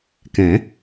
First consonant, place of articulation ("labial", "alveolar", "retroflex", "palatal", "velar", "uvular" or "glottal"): velar